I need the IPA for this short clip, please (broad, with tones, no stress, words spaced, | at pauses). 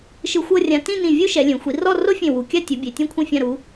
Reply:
ʃɯ˧xʷɤ˥˧rʲã˧ tĩ˥˧nĩ˧˩ vʲu˥ʃɛ˩˧lʲẽ˩˧ xʷi˩˧rɔ˥˧ro˥fʲẽ˧˩ wu˩˧kʲa˥˧tʲu˩˧bʲe˩˧ tʲẽ˧kʷʰĩ˧˩fʲã˧˩ ɾu˩˧